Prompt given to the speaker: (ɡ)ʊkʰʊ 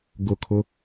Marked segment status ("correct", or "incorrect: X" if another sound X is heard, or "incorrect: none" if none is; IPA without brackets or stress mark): correct